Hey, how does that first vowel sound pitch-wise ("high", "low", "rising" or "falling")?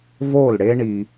falling